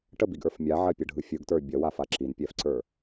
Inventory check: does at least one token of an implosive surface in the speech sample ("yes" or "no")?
no